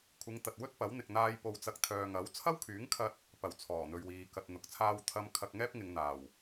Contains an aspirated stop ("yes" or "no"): yes